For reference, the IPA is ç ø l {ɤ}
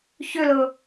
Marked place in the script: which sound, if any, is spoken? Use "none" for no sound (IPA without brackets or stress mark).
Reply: ɤ